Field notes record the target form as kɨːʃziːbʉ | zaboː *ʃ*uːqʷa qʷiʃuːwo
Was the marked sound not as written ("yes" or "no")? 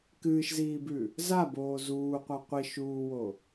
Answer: yes